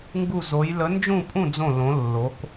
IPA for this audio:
ŋ ɡ u˥˧ z o˧˥ j l ə˧˥ n d͡ʒ ũ˥˧ pʼ ũ˥˧ d͡z õ˥˧ l õ˧˥ lː o˧˥ k

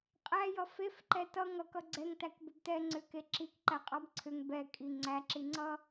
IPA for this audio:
qʼ æ j ʌ f e f ǃ ɛ t ʌ ŋ ʌ k ʌ ɡ͡ǀ ɛ ŋ t æ k b ʏ b t ɛ ŋ͡ǀ ʏ k e ǁ i k ǃ æ qʼ ɑ b ǀʰ ʏ ŋ b ɛ kʼ i ŋ͡ǀ æ ǁ i ŋ͡ǀ ʌ

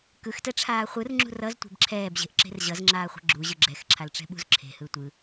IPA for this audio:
k ɯ x t ɛ ʈ͡ʂʰ aː χʷ ɯ r ŋ͡ǁ ṳ r ʌ z tʷ e̤ b ǁʰ ɛː b ʑ e̤ ʔ ǁ e̤ r ʑ ʌ z ŋ͡ǁ aː χʷ ɛ̤ ɡ͡ǁ u ʑ ɯ ɡ͡ǁ ɛ x ǁʰ a l ʈ͡ʂ ɛ̤ ɓ ṳ z ǁʰ e̤ h ɯ tʷ ɯ

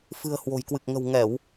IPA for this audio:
f ɨ̤˨˩ ə̯ h w o̤˨˩ j k w ɨ˨˩ k̚ ŋ ə̤˨˩ w ŋ ɛ˧˩˨ w

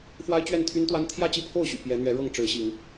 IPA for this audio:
f w a˦ ɪ̯ t͡ɕ ɥ ɛ˥˨ n t̪ʰ y˦ n t̪ w a˦ n t̪ʰ j ä˥˨ t͡ɕ i˥˨ pʰ o˥˨ ʊ̯ ɕ y̰˨˩ p j ɛ˨˦ n̪ ɥ ɛ˨˦ ɻ ɤ˥˨ ŋ ʈ͡ʂ ɻ̩˨˦ ɕ i˨˦ ŋ

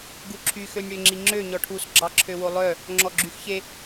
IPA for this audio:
ɡ u ǁʰ y x ø nʲ ɽ ø ŋ͡ǁ i ŋ͡ǁ ø ɲ ɔ ʈʰ u s ɡ͡ǁ ɑ ǁʰ ø w o lˠ œ | ŋ͡ǁ ɔ ɡ͡ǁ y x ç e

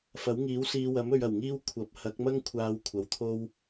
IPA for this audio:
f ɐ˨˥ w ŋ iː˨˥ w s iː˨˧ w ɐ˨˥ m ɵ˨˧ ɥ ɐ˨˩ w ŋ iː˥ w kʷʰ ɐ˨˥ p̚ h ɐ˨˥ k̚ m ɐ˥ ŋ kʷʰ aː˨˧ w kʷʰ ɐ˨ w t̪ʰ o˥ w

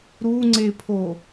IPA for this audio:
ɾ u ŋ͡ǀ e pʰ o

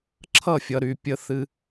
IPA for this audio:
ǁʰ ʌ˦˨ fʲ ʌ˨ ɾ y˨ pʲ ə˦ θ ɨ˦

